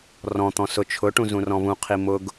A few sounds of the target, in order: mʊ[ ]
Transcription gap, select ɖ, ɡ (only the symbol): ɡ